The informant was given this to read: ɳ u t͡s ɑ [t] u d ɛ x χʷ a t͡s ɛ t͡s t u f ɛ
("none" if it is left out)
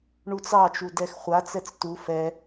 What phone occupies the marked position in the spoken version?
t͡ʃ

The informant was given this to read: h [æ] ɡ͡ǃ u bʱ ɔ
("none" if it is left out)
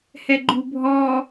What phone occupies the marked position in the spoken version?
ɛ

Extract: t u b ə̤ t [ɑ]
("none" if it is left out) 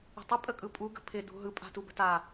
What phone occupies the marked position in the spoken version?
a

